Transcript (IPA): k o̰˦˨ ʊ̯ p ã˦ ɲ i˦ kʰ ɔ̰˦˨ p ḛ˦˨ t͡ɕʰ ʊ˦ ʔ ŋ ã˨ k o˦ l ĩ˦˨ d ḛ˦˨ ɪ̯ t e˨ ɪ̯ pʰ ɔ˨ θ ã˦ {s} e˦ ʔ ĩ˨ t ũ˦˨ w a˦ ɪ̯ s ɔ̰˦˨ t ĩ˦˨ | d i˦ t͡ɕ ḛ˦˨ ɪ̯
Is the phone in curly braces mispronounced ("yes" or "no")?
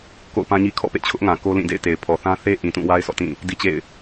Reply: yes